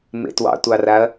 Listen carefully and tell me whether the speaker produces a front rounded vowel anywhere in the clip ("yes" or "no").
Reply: no